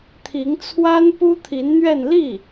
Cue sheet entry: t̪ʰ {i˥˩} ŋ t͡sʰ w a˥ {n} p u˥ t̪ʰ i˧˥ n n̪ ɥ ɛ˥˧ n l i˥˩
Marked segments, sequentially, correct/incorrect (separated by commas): incorrect, correct